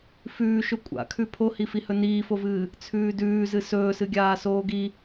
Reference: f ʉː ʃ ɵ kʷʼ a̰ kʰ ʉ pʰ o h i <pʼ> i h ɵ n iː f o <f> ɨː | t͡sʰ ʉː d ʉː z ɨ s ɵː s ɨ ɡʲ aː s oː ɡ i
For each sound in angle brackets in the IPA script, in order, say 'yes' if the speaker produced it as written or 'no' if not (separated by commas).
no, no